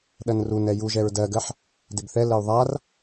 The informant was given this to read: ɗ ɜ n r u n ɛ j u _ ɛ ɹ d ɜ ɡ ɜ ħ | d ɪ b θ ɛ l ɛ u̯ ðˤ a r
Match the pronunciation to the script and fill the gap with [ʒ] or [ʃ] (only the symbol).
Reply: ʒ